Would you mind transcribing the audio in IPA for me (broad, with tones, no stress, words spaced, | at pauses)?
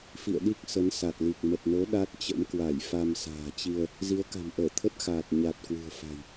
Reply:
fḭ˧˨ə̯ɗi˦˥k̚ sə˨˦nsa˨˩t̚li˨˩k̚ mə˨˩t̚no˨˦ ɗa˦˥t̚t͡ɕə̰˧˥mkwa˧˩j fa˧msa̤ː˨˩t͡ɕi˧ə̯ | zi˨˦ə̯ka̤˨˩mʔəː˧˩ t̪ʰə˦˥t̚xaː˨˩t̚ ɲa˨˩t̚ kwɨ̤˨˩ə̯fa̤˨˩j